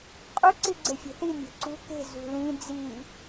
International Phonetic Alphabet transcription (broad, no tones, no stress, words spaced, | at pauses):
qʼʊ ǀiɡ͡ǀefʲe̤θi mʲo̤ǀṳ ke̤ zṳlĩ d͡zi